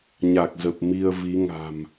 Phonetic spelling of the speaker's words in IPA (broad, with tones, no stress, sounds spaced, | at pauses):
ɲ a˨˩ k̚ z ə˨˩ p̚ m i˧ ə̯ v i˨˦ ŋ a̤˨˩ m